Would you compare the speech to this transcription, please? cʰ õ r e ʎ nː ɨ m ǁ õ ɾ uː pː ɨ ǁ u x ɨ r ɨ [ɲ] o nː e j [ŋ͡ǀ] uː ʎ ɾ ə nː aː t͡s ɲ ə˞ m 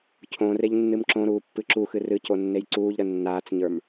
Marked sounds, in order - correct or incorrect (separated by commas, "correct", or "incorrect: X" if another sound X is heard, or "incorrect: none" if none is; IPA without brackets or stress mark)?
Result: incorrect: c, incorrect: ǀ